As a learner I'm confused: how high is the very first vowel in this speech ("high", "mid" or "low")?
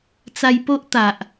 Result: low